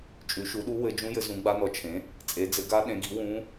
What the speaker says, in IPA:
t͡ʃʼʉ˩˥ʃu˩˥ɗu˧˥ wɘ˧˥ d͡ʒũ˧˥jɘ˩˥zũ˩˥ ɡ͡ba˧˥nɔ˩˥ t͡ʃʰẽ˩˥ | t͡sʼe˩˥d͡zɘ˩˥ ɡa˧˥ɗẽ˩˥ɡi˩˥ wũ˧˥

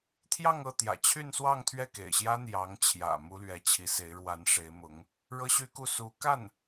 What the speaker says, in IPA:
t̪ʰjɑ˥˧ŋ ɤ˥˩t̪jä̰˨˩ t͡ɕʰy˥˧nswɑ˥˧ŋ t̪ʰɥɛ˥˩kḛ˨˩ɪ̯ɕjä˥ n̪jɑ˧˥ŋt͡ɕʰjä̰˨˩ mu˥lɥɛ˧˥t͡ɕʰi˧˥ se˧˥ɪ̯ɻwa˧˥nʂe˧˥ɪ̯mʊ˧˥ŋ | ɻɤ˥ɕy˥ku˥˩ su˧˥ka˥˩n

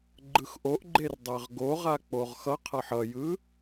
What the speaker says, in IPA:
ɡ͡ǃɯxʔoʔɡ͡ǃer dˤɛʁɡoʁa k͡poʁxʌqʰʌħ ʌjɯ

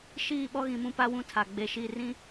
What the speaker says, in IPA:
ʃiː˦˨ɓɔ˦ɣĩ˨mũ˦ pa˦wũ˦tʰa˨ ɡ͡be˨ʃi˦˨rĩ˦

